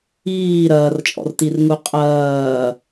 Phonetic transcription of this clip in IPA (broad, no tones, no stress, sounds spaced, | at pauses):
iː ɾ ɐː r t͡ʃʼ ɔ̰ r t i r ŋ u qʼ ɐː